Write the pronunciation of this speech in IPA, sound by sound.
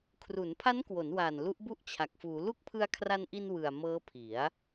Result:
kʰ r u˩˦ n pʰ a˦˥ n k w o˩˦ n w aː˨˩ n l u˦˥ ʔ b u˥˩ ʔ t͡ɕʰ a˨˩ k̚ f uː˩˦ l u˦˥ k̚ pʰ ɯ˧ a̯ kʰ r a˧ n ʔ i˧ n w ɯ˨˩ a̯ m ɤː˦˥ pʰ i˩˦ a̯

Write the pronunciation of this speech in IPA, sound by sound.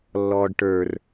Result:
lː ɔː ɖ ʈ ə˞ r

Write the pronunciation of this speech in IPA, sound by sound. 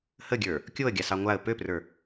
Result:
h ə ɡʲ ə˞ | kʲ o ə̯ ɡʲ a s ɑ ŋʷ a ə̯ p ø p r ə˞

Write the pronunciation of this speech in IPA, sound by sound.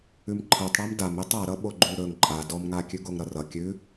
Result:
ʉ m ǃʰ ɤ tˤ ɽ a m d a m e tˤ a ɾ ʌ ɓ o ɡ͡ǃ ʉ ɾ ɵ ŋ ǃʼ a d ɔ m ŋ a kʲ ʉ ɡ o ŋ ɾ ʌ r ʌ kʲ ʉ

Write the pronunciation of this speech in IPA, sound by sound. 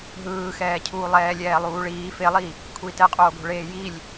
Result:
ɦ ɯː x ɛː cʰ uː lˠ ɛː lʲ ɛː lˠ uː ɭ iː f e lˠ i | kʷʰ iː t ɛ qʼ oː ɡ o̤ ɭ eː j i lʲ

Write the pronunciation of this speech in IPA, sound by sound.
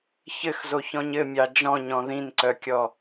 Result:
ç ɘ x z o ç ɔ̃ ɲ ɘ mʲ ɑ d͡ʒ ɔ̃ ɲ ɔ̃ ð ĩ n ǀ œ kʲ ɔ

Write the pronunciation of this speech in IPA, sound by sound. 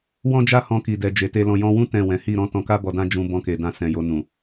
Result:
w ɔ̃˦ d͡ʒ a˦˨ h ɔ̃˧ k i˨ d ɛ˨ d͡ʒ e˨ t e˧ l ɔ̃˨ j ɔ̃˧ w ũ˦ t ɛ̃˦˨ w ɛ̃˨˦ h i˦˨ ɾ ɔ̃˨˦ t ɔ̃˧ k a˦ b ɔ˧ d ã˦ d͡ʒ ũ˧ b ɔ̃˧ k e˨ d ã˧ s ɛ̃˨ j o˧ n ũ˨

